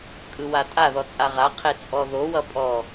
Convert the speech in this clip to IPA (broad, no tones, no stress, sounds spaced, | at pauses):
kʼ ɯ w a tʼ a ð ɔ t͡sʼ a ʁ a qʰ e t͡sʼ ɔ ð o w ʌ pʼ ɔ